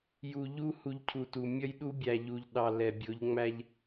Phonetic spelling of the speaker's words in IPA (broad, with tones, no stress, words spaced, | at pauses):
ju˨ ʎu˦ hu˨ʎ cʰu˨tu˨ mʲʌ˦jɗu˦bʲæ˨ ʎu˨ʎɗɑ˨ lɛ˨bʲʊ˨˦ʎ ŋ͡mæ˦ʎ